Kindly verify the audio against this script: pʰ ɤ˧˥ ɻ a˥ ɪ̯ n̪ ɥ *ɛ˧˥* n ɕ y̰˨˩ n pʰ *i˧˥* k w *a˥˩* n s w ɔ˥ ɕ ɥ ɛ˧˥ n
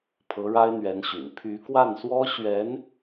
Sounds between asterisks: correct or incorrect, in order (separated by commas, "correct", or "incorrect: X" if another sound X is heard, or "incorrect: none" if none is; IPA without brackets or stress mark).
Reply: correct, incorrect: y˧˥, correct